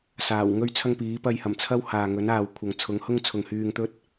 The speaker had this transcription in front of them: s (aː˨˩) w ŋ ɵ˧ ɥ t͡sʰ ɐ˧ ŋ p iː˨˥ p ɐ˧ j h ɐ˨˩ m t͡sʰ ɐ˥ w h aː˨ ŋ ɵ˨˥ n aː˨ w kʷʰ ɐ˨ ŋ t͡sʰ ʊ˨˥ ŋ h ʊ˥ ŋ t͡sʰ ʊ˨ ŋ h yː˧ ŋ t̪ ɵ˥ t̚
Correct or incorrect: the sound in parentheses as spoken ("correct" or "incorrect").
correct